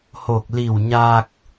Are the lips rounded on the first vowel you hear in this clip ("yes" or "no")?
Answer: yes